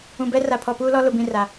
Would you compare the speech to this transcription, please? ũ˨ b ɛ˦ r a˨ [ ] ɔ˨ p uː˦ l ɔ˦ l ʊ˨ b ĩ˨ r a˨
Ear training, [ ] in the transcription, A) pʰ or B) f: A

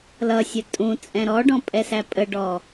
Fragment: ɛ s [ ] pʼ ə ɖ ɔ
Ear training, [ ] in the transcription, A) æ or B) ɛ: A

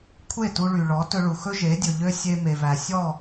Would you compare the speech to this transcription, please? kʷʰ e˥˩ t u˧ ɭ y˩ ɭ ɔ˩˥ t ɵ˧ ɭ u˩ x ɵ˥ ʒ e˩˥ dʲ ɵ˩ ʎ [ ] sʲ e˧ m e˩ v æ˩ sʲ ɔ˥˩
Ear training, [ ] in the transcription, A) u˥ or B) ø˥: B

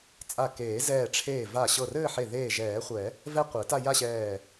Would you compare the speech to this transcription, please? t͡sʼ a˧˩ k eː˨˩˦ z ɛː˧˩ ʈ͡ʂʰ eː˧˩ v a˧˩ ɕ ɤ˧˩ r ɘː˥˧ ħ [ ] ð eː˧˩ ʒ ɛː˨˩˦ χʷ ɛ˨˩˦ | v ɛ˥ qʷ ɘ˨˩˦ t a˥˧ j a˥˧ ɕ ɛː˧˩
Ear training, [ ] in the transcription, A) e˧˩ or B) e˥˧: A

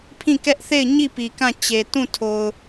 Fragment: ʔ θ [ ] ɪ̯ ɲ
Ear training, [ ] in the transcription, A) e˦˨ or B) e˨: A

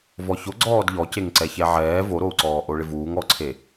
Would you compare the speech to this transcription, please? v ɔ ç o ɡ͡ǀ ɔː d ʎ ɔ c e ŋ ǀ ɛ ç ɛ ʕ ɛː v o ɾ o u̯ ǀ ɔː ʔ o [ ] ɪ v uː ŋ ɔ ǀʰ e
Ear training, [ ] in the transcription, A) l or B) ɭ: B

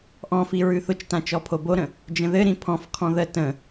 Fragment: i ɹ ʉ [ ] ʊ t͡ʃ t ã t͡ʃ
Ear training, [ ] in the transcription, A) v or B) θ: B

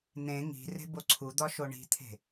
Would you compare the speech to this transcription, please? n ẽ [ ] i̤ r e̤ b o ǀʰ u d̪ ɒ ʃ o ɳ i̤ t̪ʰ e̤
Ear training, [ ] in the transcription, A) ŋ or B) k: A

